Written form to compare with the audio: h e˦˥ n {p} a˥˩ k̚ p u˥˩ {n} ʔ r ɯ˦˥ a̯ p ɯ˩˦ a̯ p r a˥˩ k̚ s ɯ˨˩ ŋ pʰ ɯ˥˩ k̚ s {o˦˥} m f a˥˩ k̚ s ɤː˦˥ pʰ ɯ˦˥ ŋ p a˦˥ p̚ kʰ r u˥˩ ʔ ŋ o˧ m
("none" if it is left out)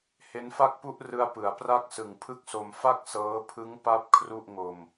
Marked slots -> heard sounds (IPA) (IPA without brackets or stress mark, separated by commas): f, none, o˧